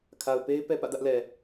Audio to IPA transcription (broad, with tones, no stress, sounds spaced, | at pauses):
kʰ a˨ ʊ̯ p e˦ ɪ̯ p ɛ˦ p ä̰˦˨ d ä˦ ʔ l ɛ˨